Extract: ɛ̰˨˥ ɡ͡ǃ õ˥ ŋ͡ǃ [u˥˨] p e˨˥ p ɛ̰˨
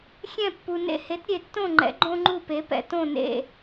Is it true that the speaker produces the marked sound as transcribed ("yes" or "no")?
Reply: yes